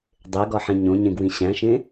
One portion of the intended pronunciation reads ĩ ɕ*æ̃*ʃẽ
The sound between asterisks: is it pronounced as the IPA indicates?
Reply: yes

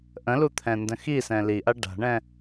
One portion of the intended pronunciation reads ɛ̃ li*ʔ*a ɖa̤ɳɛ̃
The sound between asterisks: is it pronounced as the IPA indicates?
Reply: yes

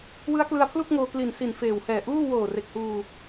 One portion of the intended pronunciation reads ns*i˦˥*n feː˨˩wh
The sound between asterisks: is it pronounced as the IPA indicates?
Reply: no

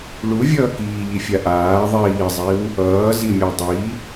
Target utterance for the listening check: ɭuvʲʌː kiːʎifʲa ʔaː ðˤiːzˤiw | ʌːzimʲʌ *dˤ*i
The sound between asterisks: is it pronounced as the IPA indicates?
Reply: yes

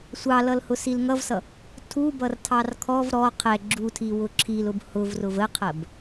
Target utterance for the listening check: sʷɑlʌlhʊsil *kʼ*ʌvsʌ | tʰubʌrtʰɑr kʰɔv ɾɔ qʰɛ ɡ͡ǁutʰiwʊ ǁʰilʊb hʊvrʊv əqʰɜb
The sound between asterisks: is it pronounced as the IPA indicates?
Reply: no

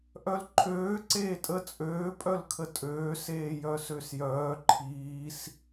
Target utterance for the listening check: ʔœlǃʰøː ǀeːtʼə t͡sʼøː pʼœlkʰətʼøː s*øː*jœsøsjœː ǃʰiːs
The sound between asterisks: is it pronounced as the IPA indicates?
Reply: no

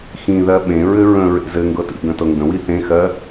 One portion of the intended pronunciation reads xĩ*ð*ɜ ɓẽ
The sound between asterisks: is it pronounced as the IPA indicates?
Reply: yes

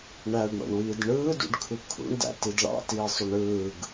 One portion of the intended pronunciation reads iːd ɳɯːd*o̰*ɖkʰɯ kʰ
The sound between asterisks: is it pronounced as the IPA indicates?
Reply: no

